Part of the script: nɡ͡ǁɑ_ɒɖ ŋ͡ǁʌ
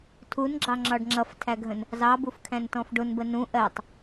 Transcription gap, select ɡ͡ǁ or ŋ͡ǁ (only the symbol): ŋ͡ǁ